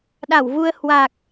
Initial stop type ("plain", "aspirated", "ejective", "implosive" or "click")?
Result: implosive